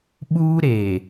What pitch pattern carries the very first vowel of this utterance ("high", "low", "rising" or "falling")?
high